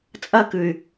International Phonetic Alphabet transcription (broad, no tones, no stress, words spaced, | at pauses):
t͡sʼɐkʉy̯